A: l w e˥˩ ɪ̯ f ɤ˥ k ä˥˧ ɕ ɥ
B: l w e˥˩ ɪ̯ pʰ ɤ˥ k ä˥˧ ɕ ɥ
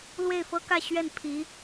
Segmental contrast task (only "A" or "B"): A